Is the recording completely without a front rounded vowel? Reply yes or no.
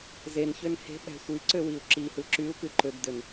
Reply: no